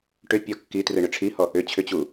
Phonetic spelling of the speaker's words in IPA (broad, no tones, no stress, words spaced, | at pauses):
ʈʏ pʲɔkːitrɯ ɳʏʈ͡ʂʰihɔ | ʏ t͡ɕʰʏt͡ɕu